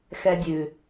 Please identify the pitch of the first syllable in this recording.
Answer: low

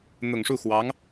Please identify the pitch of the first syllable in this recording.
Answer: low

